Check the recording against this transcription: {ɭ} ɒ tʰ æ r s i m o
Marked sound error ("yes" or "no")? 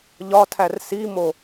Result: yes